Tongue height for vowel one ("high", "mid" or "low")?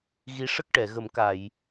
high